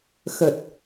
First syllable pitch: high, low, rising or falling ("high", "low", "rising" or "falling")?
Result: low